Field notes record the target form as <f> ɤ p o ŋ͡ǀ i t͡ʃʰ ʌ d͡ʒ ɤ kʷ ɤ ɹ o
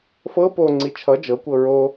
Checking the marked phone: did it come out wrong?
no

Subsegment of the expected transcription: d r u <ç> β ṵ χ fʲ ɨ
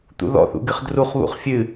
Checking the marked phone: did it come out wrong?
yes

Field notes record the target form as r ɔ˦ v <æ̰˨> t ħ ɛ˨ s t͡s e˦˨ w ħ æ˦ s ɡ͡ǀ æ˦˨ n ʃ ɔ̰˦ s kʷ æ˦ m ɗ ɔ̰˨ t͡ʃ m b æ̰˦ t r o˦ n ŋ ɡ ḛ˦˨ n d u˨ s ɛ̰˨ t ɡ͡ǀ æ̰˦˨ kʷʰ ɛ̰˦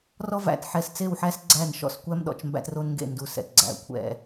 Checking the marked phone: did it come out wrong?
no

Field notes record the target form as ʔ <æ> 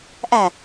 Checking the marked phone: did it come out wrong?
no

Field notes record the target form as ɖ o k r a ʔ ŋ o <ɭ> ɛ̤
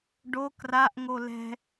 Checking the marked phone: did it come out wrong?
yes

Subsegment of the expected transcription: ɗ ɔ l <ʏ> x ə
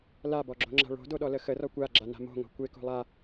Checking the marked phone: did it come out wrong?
yes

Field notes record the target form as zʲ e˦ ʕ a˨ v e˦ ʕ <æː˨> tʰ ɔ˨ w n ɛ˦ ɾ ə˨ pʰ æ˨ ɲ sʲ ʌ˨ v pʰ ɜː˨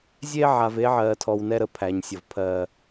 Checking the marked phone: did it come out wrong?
yes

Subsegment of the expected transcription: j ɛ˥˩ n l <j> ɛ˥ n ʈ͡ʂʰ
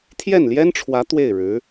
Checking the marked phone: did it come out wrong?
no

